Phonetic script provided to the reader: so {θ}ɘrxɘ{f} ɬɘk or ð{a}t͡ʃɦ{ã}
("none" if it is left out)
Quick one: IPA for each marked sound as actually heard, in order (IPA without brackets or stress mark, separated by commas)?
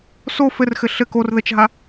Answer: f, none, ə, a